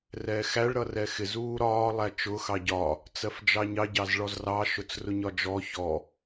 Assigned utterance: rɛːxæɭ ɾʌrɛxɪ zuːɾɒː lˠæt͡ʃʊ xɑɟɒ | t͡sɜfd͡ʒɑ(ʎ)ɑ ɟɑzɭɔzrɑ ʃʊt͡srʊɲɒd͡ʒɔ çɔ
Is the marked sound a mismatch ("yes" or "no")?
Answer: yes